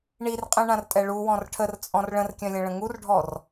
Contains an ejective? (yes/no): yes